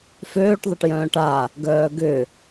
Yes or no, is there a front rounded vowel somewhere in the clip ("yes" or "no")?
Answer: yes